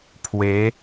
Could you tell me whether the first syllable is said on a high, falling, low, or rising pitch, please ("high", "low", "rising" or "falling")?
rising